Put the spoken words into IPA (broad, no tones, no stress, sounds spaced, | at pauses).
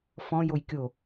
f ɔ̃ j o j kʲ o